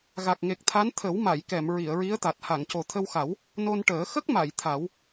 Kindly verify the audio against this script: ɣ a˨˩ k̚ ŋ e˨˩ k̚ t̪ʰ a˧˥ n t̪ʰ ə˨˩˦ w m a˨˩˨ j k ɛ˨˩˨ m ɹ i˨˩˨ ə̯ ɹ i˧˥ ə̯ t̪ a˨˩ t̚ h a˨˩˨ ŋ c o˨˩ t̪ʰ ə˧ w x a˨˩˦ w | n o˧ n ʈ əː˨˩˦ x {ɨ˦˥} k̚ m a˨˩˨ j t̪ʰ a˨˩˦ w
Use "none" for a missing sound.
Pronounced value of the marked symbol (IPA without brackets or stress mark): ə˦˥